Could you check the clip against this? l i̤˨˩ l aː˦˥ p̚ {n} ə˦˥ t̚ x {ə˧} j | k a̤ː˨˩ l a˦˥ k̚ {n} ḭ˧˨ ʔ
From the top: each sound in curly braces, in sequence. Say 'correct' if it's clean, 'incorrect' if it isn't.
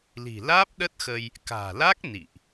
incorrect: ɗ, correct, correct

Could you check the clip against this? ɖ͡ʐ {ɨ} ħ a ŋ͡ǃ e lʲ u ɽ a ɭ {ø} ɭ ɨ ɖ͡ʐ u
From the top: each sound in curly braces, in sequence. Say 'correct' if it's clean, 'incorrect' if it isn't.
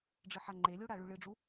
correct, incorrect: ʉ

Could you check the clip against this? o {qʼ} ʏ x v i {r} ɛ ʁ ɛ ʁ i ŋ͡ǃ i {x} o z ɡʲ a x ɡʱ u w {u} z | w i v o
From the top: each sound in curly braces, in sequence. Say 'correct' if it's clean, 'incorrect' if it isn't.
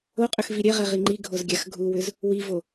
correct, incorrect: ɾʲ, incorrect: ɡʱ, incorrect: ʏ

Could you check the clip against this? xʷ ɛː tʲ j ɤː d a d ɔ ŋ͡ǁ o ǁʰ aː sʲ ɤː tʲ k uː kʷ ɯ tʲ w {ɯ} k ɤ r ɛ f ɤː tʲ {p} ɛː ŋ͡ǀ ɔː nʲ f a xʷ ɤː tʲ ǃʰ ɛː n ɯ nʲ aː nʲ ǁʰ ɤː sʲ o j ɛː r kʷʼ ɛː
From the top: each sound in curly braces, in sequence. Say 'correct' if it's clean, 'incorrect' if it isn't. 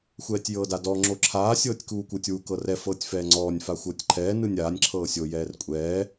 incorrect: u, incorrect: f

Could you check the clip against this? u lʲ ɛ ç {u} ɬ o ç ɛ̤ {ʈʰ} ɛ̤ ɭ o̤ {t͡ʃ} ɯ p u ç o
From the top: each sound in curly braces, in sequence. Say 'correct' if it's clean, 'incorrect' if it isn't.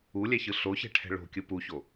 incorrect: ɯ, correct, incorrect: kʲ

